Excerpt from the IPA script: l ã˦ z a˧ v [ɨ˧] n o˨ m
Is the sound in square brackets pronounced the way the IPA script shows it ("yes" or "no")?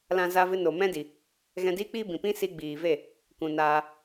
yes